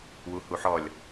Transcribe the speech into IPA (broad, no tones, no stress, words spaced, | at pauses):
wuhuħɔlʲ